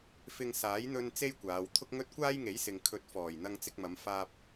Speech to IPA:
f ɪ˧ ŋ s aː˨˥ j n̪ ɵ˥ n t͡s e˥ j kʷ aː˨˧ w t̪ʰ ʊ˥ k̚ ŋ ɵ˥ t̚ kʷ aː˥ j ŋ e˨˥ j s ɪ˨ ŋ kʰ ɵ˨˥ t̚ f ɔː˨˩ j n̪ ɐ˧ ŋ t͡s ɪ˧ k̚ m ɐ˨˧ m f aː˧ p̚

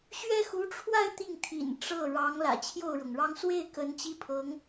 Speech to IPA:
ɕ ɥ ɛ˥ x u˧˥ ʈ͡ʂʰ w a˥˧ ɪ̯ t̪ i˥˩ ŋ t̪ʰ ḭ˨˩ n ʈ͡ʂ ɤ˥˩ ɻ ɑ˧˥ ŋ l ä̰˨˩ t͡ɕʰ j o˥˩ ʊ̯ ɻ ɤ˩ ŋ ɻ ɑ˥ ŋ s w e˥˩ ɪ̯ k ə˧˥ n t͡ɕ i˥˩ pʰ ɤ˧˥ ŋ

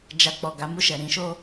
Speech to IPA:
d͡ʒ a˧ k͡p ɔ˨ ɡ a˨˦ m u˦˨ ʃ ɛ˨ ɾ ĩ˨˦ ʃ o˦

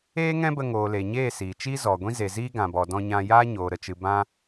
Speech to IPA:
eː˦ ŋ ɛ̃˦ b ə˧ ŋ oː˨ l e˨ ɲ eː˦˨ s iː˨ t͡ʃ i˦ z ɔ˨ ɡʷ ĩ˦ z e˨ z iː˦ ɡ ã˨ b ɔ˨ d ɔ̃˧ ɲ ã˧ j aː˦ ɲ oː˨ ɾ ə˨ t͡ʃ ɨ˨ b ã˦

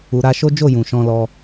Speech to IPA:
u˨ ɾ a˧ ʃ o˦ d͡ʒ o˦˨ j ũ˨ ʃ ɔ̃˧ l ɔ˧

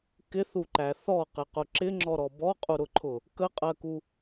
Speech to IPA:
k ɪ θ u ǃ æ θ ɔ q ɪ q ʊ ǁ ɪ ŋ͡ǁ ɔ ɾ ɔ b ɔ qʼ u ɾ ʊ ǃʰ ʊ | k ə qʼ ɜ k u

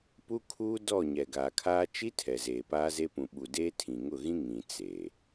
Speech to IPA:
p u˦ kʰ uː˦ d ɔ˦˨ ɲ ɛ˨ ɡ aː˨ kʰ aː˦ t͡ʃ i˦ tʰ ɛ˨ z eː˨ p aː˦ z e˦ p ũ˨ ɓ u˨ d eː˦ tʰ ĩ˨ ŋ ʊ˦˨ ɣ ĩ˦ ŋ ĩ˨ t͡s eː˨

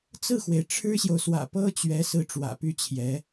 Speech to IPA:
t͡s ɹ̩˥˩ x w e˩ ɪ̯ ʈ͡ʂʰ ɻ̩˥ ɕ j o˨ ʊ̯ s w ä̰˨˩ p ɤ˥ t͡ɕ ɥ ɛ˧˥ s ɹ̩˥ ʈ͡ʂ w ä̰˨˩ p y˥˩ t͡ɕʰ j ɛ˧˥

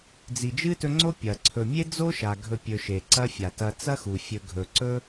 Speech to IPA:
d͡z i˨ d͡ʒ ɨ˥ t ɵ˦ ŋ͡ǀ o˥ pʲ ɐ˩ ǀʰ ɵ˨ mʲ e˥ d͡z o˥ ʃ a˩ ɡʱ ɵ˨ pʲ ɵ˨ ʃ e˩ ǀ ɐ˦ fʲ a˩ t ɐ˨ t͡s ɐ˦ x u˩ fʲ ɵ˨ ɡʱ ɵ˩ ǀ ɵ˦

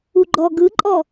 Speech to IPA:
u ɡ͡ǃ ɔ ɡ ɯ ǃʼ ɔ

